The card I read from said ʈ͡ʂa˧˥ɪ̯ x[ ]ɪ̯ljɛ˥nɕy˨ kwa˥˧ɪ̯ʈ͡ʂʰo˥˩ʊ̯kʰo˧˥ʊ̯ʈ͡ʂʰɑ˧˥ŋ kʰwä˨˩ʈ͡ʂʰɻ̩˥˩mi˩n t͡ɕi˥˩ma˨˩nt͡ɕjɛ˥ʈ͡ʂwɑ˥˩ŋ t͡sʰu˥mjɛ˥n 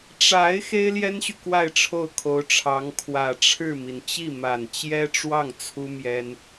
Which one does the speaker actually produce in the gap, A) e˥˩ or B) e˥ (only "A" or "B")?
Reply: B